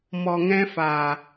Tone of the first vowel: low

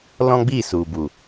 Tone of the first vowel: high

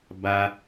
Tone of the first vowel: high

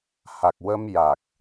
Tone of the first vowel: low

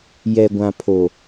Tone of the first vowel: low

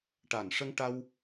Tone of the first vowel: low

